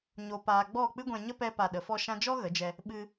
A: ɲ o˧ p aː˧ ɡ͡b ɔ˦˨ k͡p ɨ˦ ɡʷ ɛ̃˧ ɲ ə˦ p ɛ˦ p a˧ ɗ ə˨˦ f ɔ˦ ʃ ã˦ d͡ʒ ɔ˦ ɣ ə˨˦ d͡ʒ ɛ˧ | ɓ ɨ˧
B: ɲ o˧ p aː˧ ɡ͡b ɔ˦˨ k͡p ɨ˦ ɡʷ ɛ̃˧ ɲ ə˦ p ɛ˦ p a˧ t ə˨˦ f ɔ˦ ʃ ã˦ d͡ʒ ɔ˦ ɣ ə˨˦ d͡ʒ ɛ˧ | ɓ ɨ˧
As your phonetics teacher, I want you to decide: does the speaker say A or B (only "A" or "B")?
A